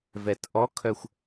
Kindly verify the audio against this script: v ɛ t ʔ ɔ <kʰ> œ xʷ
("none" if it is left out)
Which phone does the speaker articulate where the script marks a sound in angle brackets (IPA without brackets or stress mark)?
kʰ